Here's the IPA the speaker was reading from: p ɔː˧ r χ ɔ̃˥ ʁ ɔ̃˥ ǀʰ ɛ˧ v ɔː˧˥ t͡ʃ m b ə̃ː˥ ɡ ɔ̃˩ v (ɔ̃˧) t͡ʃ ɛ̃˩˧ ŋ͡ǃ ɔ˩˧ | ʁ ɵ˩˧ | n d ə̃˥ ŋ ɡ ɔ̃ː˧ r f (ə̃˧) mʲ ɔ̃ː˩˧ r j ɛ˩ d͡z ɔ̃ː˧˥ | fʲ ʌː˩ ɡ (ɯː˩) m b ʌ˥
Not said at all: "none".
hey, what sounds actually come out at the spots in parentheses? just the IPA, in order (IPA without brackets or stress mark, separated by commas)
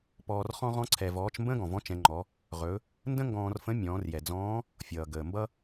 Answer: ɔ̃˧˥, ə̃˧˥, əː˩